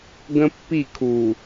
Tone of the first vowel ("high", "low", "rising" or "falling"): high